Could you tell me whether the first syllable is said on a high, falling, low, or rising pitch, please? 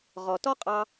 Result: low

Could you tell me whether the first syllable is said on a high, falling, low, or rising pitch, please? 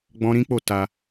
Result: high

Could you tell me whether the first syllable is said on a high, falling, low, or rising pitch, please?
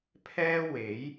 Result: high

